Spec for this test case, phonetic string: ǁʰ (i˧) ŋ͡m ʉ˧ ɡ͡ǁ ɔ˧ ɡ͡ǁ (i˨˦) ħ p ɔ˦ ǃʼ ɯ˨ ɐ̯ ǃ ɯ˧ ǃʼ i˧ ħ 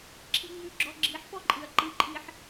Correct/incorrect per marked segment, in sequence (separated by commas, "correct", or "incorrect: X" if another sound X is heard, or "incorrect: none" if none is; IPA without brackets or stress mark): correct, correct